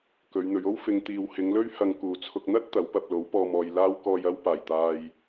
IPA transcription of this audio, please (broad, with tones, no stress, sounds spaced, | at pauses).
k ɵ˨˧ ɥ n̪ ɵ˨˧ ɥ o˥ w f ɪ˧ ŋ t̪ iː˨ w h ɪ˨˧ ŋ l ɵ˥ ɥ h ɐ˨ ŋ k uː˨˩ t͡sʰ ʊ˨ k̚ n̪ ɐ˥ t̚ t̪ ɐ˨˥ w p ɐ˧ p̚ l o˨˥ w p ɔː˨ m ɔː˨ j l aː˧ w k ɔː˨ j ɐ˧ w p aː˨˩ j t̪ aː˨ j